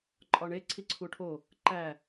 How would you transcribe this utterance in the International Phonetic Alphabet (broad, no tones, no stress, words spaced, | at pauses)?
ǃʼɒɳe ǀʰiǀʰuʈʰo | ǃæ